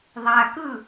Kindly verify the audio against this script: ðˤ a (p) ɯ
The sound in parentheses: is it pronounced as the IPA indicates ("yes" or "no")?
no